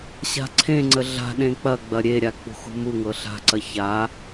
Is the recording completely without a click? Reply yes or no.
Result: no